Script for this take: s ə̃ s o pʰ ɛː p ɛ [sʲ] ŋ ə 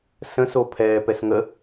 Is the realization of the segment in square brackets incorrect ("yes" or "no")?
yes